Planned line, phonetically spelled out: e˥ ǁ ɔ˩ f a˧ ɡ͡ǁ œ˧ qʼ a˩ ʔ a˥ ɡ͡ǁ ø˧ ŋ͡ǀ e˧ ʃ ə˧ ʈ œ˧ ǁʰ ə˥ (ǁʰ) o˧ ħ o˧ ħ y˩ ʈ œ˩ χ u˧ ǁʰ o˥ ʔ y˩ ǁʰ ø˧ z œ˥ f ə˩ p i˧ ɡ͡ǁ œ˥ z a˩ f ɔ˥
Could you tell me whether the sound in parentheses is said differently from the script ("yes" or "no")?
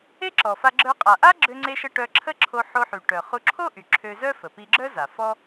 no